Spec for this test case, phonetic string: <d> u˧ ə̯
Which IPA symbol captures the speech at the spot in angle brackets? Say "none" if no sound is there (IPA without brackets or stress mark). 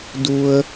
d